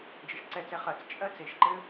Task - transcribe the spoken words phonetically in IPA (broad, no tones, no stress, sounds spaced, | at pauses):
d͡ʒ ɘ ʃ ǀ ɛ t͡s ɛ χ ɜ t͡s t͡ʃʼ ɜ t͡s e ʃ ǃ ɘ